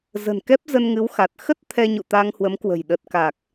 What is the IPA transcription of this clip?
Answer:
z ə̤˨˩ n k ɛ˦˥ p̚ z ə˧ n ŋ ɨ˨˦ w x a˨˩ t̚ x ə˦˥ t̚ t̪ʰ ɛ˧ ɲ ṵ˧˨ t̪ a˧ ŋ h w ə˨˦ m k w ə̤˨˩ j ɗ ə˨˩ t̚ k aː˨˩ k̚

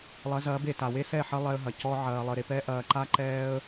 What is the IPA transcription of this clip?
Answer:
lˠ ɐ˨˦ z ɐː˨˦ b e˨ t a˨ w e˦ s ɛ˦˨ ħ ɐ˦ lˠ ɛ˧ ə̯ ɦ ɐ˨ c ɔ˧ ʕ ɐː˧ lˠ ə˧ ɾ e˦ p ɛ˦ ʔ ɐː˧ ǃ a˦ ǃ ɛː˦ ə̯

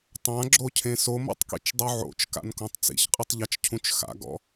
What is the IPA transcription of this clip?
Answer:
tˤ ã ɡ͡ǁ o cʰ ẽ s o m o̰ tˤ k ḭ t͡ʃ dˤ u ʕ o̰ t͡ʃ k a̰ n k õ tˤ t͡s ḭ ç qʼ ɯ tˤ ʎ a t͡ʃ cʰ ũ t͡ʃ x a̰ ɡ ɔ̰

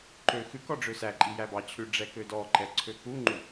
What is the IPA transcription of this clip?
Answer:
ǃ ø x ʉ k ɔ ɖ͡ʐ ø s æ ǃʼ i j æ b ɑ t͡ɕʰ ʉ ɖ͡ʐ ɛ k ø d ɔ ǃ ɛ ǀʰ ø k u ŋ͡ǃ u

